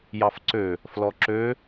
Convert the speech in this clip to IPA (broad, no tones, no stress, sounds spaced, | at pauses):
j ɑ f ǀ ø | f l ɔ ǁ ø